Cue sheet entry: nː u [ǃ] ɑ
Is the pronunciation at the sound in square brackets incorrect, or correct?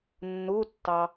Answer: incorrect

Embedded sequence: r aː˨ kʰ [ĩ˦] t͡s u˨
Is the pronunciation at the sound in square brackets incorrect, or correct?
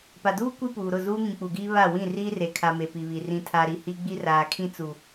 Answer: correct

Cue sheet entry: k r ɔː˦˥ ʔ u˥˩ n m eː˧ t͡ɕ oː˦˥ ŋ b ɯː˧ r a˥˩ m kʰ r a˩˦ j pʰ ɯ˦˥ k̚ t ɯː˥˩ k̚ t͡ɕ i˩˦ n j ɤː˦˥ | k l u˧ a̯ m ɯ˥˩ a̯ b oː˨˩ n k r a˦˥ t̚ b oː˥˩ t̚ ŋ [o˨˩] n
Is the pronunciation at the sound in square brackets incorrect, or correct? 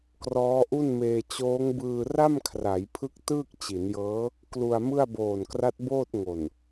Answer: correct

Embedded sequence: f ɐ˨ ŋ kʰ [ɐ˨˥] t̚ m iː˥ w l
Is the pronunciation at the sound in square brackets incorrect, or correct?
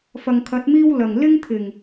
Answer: correct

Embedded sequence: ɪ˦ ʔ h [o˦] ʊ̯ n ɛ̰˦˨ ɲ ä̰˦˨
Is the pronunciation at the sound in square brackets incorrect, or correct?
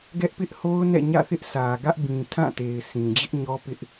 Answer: correct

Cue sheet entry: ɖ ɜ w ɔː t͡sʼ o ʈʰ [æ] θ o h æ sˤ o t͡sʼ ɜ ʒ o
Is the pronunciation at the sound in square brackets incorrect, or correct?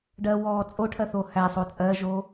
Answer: incorrect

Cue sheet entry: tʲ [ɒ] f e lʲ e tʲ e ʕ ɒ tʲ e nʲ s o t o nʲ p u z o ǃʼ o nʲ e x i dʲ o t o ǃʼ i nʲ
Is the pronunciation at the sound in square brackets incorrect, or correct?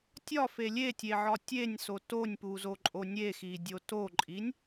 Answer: correct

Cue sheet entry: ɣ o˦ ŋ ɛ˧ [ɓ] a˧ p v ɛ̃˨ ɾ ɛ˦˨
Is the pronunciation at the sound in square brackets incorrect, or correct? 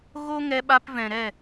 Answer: correct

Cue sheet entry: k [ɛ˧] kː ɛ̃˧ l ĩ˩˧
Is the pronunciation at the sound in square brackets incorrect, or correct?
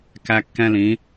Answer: incorrect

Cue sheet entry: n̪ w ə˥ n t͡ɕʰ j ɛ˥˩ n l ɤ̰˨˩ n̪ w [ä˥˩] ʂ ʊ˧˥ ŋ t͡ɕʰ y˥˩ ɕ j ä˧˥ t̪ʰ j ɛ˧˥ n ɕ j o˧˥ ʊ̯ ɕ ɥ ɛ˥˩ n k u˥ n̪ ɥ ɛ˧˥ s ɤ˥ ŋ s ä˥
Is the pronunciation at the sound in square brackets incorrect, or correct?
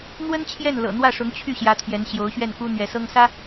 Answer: correct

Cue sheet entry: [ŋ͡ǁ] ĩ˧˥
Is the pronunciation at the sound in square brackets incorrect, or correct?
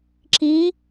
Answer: incorrect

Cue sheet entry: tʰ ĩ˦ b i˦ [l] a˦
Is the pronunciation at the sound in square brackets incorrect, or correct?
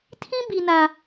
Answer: incorrect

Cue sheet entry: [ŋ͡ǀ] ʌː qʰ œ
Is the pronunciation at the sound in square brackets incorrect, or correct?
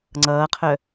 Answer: correct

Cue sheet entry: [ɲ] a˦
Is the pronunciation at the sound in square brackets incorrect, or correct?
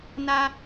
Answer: incorrect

